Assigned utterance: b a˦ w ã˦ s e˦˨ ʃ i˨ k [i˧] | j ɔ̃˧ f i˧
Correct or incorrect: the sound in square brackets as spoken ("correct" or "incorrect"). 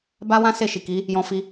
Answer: incorrect